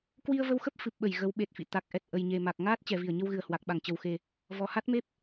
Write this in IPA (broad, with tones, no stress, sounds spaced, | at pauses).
k w i˧ ə̯ v ə˧ w x ə˦˥ p̚ f ɨ˨˩ p̚ ɓ ə˧˩ j ɣ ə˨˦ w ɓ e˨˩ t̚ f ḭ˧˨ t̪ a˨˩ k̚ ʔ ɛ˨˩ t̚ ʔ ə˨˩ j ɲ e˨˩ m a˨˩ k̚ ŋ aː˦˥ t̚ t͡ɕ ɛ˨˩ v i˧˩ ə̯ ɲ ə˧ w ɣ ɨ˧˩ ə̯ h w a˨˩ k̚ ɓ a˧˩ ŋ t͡ɕ ə˨˩ w x e˨˩ | v ɔ˨˩ h a˦˥ t̚ m e˦˥ p̚